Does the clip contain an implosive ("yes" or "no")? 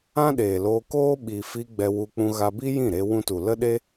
yes